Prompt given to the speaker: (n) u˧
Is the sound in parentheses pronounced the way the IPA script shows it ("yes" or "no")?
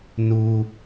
yes